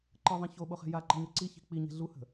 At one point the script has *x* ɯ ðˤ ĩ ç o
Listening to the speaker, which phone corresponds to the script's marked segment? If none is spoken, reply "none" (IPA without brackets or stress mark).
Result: ǃ